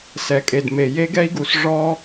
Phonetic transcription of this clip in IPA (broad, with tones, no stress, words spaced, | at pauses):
sɛ˨kʼe˨dme˨ je˦ɡɛ˦i̯ɡu˨s ʐɔ˦